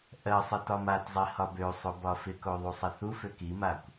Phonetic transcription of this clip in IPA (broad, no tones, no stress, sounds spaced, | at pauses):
ʔ ɜ sˤ ɪ t ɒ m a t zˤ i h ɒ b ø sˤ o b ɒ f ɪ k o ðˤ u sˤ ɪ θ u f ø k i m a kʷ